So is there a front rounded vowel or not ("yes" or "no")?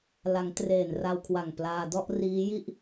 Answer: no